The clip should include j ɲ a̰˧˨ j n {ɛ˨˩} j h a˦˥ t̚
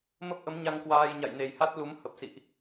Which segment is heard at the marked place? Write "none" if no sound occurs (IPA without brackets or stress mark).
e˨˩